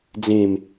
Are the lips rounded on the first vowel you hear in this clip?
no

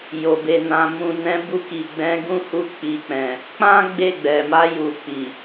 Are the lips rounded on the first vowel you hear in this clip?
yes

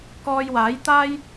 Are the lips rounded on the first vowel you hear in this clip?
yes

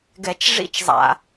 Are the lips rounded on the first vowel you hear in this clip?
no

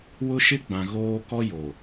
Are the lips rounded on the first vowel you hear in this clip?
yes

